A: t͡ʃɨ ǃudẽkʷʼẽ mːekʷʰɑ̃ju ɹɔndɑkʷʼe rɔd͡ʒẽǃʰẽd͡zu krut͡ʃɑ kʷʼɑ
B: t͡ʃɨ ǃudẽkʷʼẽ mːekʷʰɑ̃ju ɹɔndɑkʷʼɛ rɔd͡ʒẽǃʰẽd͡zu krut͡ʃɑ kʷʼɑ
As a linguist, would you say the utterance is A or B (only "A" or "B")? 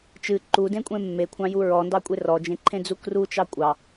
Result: A